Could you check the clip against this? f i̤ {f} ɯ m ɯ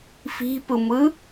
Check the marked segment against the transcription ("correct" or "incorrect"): incorrect